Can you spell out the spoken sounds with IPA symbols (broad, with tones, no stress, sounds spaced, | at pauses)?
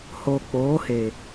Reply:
h oː˨ k͡p oː˨˦ h e˨